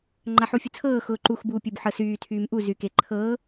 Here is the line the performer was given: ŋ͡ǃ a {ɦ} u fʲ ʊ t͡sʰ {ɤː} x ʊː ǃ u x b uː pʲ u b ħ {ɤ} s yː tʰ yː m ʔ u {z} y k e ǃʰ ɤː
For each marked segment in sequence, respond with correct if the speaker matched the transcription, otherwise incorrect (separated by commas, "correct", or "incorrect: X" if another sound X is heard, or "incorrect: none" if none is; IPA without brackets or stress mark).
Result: incorrect: ħ, correct, correct, correct